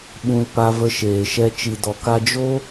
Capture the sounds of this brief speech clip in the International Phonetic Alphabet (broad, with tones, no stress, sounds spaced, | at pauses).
ɓ ũ˧ l p a˧ v ə˧ ʃ eː˨ ʃ ɛ˧ t͡ʃ i˨ d ɔ˨ k a˧ d͡ʒ o˦